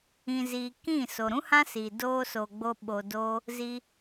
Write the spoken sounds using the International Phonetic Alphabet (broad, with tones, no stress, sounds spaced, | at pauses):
ĩ˨ z iː˨ k ĩ˦˨ s o˨ ɾ ũ˦ h ã˦ s i˨ d oː˧ s oː˨ ɡ͡b o˧ ɓ o˧ d o˦ | z i˧